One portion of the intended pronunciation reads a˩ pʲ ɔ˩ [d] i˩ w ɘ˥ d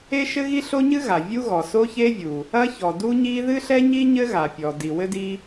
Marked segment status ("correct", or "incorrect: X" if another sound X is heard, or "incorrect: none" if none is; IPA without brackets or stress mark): correct